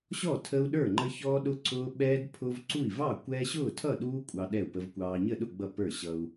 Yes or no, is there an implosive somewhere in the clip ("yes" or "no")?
yes